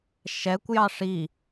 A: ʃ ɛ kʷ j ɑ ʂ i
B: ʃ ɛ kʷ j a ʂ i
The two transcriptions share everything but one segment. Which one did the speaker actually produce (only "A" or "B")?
A